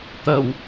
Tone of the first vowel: low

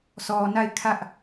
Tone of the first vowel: low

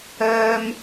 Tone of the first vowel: high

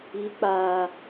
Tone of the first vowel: rising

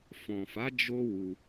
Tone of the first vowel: low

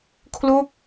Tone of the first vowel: falling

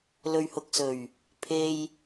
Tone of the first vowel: low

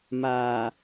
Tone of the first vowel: low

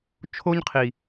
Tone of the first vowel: high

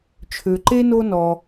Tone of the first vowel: low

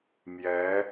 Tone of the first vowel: rising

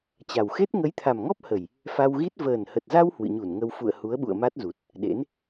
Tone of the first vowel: low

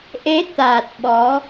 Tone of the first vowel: rising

